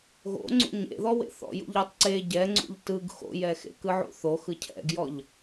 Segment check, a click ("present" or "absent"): present